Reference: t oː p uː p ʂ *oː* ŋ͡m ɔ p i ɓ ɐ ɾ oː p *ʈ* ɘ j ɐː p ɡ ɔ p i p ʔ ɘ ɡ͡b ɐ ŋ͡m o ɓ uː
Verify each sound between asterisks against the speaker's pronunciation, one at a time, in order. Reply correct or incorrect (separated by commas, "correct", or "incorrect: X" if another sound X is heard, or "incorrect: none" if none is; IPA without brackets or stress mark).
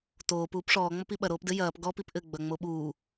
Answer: incorrect: ɔː, incorrect: d